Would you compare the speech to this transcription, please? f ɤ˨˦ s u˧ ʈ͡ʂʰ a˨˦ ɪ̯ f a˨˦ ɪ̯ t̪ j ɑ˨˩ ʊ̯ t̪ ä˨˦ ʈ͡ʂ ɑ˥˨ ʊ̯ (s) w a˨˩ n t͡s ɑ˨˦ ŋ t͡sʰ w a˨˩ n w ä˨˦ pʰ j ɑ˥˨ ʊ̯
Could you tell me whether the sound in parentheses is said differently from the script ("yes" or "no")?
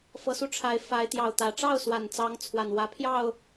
no